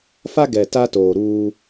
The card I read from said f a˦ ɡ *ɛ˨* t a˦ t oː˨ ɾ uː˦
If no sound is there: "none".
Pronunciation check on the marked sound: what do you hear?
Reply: ɛ˨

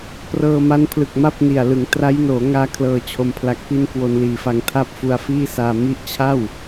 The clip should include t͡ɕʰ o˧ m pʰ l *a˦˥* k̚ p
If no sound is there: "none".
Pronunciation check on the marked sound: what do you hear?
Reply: a˦˥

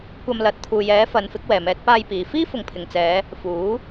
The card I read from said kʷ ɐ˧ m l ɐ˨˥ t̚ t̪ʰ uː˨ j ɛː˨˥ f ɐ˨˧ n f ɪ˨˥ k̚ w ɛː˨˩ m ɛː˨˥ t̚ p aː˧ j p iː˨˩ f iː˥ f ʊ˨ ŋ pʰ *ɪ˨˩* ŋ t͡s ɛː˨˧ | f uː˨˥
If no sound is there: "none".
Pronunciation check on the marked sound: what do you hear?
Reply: ɪ˨˩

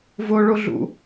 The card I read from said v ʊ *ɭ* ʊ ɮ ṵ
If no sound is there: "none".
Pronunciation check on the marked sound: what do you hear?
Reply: ɭ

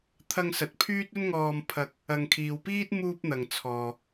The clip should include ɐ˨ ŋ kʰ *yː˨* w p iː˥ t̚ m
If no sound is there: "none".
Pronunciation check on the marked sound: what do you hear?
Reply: iː˨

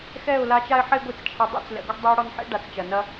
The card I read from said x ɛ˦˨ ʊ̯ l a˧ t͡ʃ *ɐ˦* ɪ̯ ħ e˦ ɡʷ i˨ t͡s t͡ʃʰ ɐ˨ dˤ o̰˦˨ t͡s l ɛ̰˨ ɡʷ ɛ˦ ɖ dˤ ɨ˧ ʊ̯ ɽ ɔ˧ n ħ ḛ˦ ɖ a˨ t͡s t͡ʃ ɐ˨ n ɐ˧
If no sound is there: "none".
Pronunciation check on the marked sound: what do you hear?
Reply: a˦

